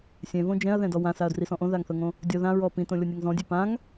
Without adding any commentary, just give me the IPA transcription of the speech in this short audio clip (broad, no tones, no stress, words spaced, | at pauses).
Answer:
sʲɛ̃võ d͡ʒɛ̃ɐ̯ðɛ̃dɔ wãsaɐ̯drisɔ̃ ʔõðaŋθɤŋõ | dʲɔ ðãɹɔ pĩtõlʲɔnʲaŋ zɔ̃dʲɛ pãŋ